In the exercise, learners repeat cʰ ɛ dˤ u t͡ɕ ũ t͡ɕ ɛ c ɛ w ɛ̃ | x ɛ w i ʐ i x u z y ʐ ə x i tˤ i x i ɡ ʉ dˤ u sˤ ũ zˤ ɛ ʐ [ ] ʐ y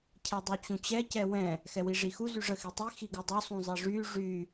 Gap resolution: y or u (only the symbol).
y